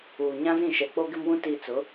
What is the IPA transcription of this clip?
uː˨ ɲ ã˦ z ĩ˦˨ ʃ ɛ˨ k͡p o˦ ɡ ɪ˦ m w ũ˦ t iː˨ t͡s ʊ˨˦

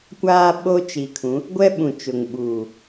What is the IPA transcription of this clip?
kʷ aː˦ ɓ o˦ t͡ʃ i˨ kʰ ũ˨˦ | ɡʷ ɛ˦ ɓ ũ˨ t͡ʃ ʊ˨ ŋ ɓ uː˨

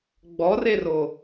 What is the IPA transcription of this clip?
ɡ͡b ɔ r e r o

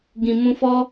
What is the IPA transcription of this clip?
ɡ ĩ˨ m ũ˧ f ɔ˦

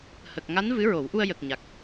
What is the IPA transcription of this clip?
h ə˨˩ k̚ ŋ a˧˥ n v ɨ˧˥ ɹ o˨˩˦ w ʔ u˧ ə̯ j ə˨˩ k̚ ɲ a˨˩ k̚

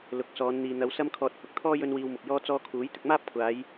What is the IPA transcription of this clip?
l ʊ˨˥ k̚ s ɔː˨˧ n n̪ iː˨ n̪ ɐ˨˧ w s ɐ˧ m kʰ ɔː˨ t̚ h ʊ˧ k̚ t̪ʰ ɔː˥ j ɵ˥ n w iː˧ w m ʊ˨ k̚ j ɔː˥ t͡s ɔː˧ kʰ uː˨˥ j t̪ ɪ˧ k̚ m aː˥ p̚ kʷʰ aː˨˧ j

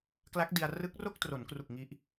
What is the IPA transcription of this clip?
k l a˦˥ k̚ d i˧ a̯ r ɯ˦˥ k̚ r o˥˩ k̚ t r o˩˦ n k r u˨˩ k̚ ŋ i˦˥ ʔ

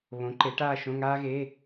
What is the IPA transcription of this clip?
β õ˨˥ ǃ e˨˥ ʈ aː˥˧ ʃ õ˧˥˧ ŋ aː˥ ɣ e˧˥˧

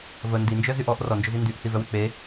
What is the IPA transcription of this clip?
v ə n d i n d͡ʒ œ z y ʔ ɔ ʔ r ɔ n d͡ʒ ʊ z i n d y ʔ θ i v œ w e k͡p e

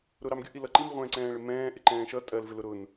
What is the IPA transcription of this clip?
ɾ ʊ ɾ ɑ m ɡʲ ʊ ʔ i l ʌ ǃ i m ʁʷ ɛ̃ː ǀ ɛ̃ː ɭ ɪ m ɛ̃ː ʔ ɪ ǃ ɛ̃ː ʃ ʌ tʼ ɜ l v ɪ l ʊ ɾ ʊ n

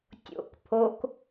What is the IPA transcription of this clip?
tʲ o̰ k pʰ o k

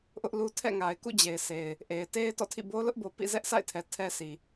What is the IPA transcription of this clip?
ʔ ʊ˦ ʔ l u˦ tʰ ɛ̰˦˨ ŋ a˨ ɪ̯ k ṵ˦˨ d͡ʑ e˨ ɪ̯ s e˨ ɪ̯ | ʔ e˨ ɪ̯ t e˦ ɪ̯ t ɔ̰˦˨ tʰ ḭ˦˨ b o˦ l ʊ˦ ʔ b o˨ p ḭ˦˨ z ɛ˦ ʔ sʰ a̰˦˨ ɪ̯ tʰ ɛ˨ tʰ ɛ˦ sʰ i˨

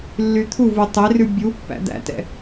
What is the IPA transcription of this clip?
lː y t̪ʰ u v u tˤ e r ʉ bʲ u pː æ̰ d̪ æ̰ t ɛ̰

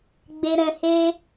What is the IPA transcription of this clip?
ɡ͡b e˧ ɾ ɛ̃˧ h e˦

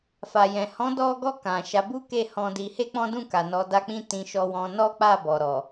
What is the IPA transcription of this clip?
f a˨ j ɛ̃˨ h ɔ̃˨˦ d ɔ˧ ɡ ɔ˧ k ã˨ ʃ a˨˦ b u˦ k e˦˨ h ɔ̃˧ d i˧ h e˦ k͡p ɔ̃˦ d ũ˦˨ k a˨ n ɔ˨˦ d a˦ k͡p ĩ˦ t ĩ˧ ʃ ɔ˧ w ɔ̃˧ n ɔ˦ k͡p a˦˨ b ɔ˨ ɾ ɔ˨

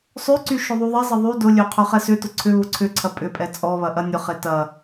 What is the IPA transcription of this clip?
sˤ ø ǀ y ʃ ʊ ðˤ u ðˤ ɛ zˤ ə ðˤ y d ʊ lʲ ø qʰ ø χ ɛ s ʏ t ʊ ǀʰ ʏ β ʊ ǀʰ ʏ ǀʰ ɐ pʼ ʏ pʼ ɛ t͡sʼ ɔ β ɐ ʔ ɐ nʲ ʊ χ e t ɐ

